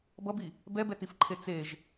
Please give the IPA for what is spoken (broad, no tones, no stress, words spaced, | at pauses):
bʌbi | bɛbɛtifǃʰe t͡seʒ